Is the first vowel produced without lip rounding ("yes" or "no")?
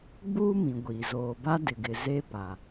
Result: no